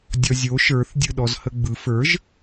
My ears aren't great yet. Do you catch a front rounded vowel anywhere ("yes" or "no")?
no